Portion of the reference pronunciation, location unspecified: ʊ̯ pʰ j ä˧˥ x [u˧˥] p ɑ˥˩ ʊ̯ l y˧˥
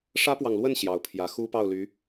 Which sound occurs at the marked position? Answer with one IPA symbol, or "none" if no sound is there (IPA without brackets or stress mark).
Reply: u˥